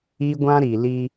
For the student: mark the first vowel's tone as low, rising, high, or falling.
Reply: high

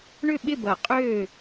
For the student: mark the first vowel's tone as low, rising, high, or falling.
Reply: falling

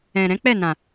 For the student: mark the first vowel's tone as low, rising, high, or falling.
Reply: low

